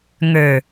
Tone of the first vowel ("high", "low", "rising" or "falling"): low